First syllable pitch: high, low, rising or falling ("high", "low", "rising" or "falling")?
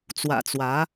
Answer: low